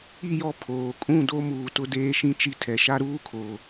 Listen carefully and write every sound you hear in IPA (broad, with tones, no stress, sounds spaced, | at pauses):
i˦˨ j ɔ˦ pʰ oː˨ kʼ ũ˦˨ d o˦ m uː˨ t ʊ˦ d eː˦ ʃ ĩ˦ t͡ʃ i˦ tʰ ɛ˨ ʃ a˦ ɾ uː˦ kʰ o˨